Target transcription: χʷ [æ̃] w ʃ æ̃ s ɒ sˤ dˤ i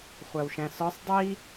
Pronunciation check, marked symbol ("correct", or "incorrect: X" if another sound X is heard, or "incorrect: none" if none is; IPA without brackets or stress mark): incorrect: æ